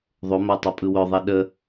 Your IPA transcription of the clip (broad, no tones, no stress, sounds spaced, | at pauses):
ðˤ o m a tˤ œ pʼ ɯ w œ ðˤ i ɗ ə